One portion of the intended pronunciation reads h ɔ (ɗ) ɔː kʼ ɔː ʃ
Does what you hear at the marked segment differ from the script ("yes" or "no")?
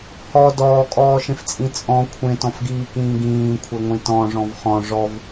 yes